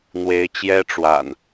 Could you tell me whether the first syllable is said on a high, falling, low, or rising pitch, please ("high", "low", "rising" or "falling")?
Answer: rising